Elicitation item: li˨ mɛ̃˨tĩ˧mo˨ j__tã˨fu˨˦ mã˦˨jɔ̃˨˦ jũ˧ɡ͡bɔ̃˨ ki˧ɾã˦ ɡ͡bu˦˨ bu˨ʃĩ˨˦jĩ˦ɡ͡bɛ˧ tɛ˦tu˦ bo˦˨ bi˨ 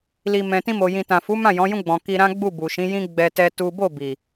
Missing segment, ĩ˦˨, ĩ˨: ĩ˨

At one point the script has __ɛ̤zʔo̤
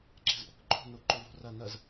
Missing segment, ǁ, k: ǁ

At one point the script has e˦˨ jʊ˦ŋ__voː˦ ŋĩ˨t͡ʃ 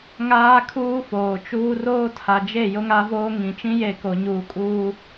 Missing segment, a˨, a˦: a˦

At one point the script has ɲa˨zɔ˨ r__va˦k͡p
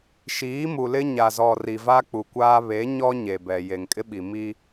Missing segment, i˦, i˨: i˨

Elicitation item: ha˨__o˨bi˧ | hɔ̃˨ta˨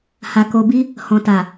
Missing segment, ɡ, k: k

